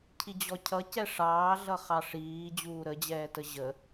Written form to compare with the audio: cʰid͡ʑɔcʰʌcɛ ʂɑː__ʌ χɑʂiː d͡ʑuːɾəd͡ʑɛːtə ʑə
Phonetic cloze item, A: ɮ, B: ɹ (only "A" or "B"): A